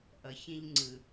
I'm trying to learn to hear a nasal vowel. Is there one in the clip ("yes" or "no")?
yes